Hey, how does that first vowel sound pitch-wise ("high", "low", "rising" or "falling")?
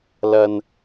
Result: low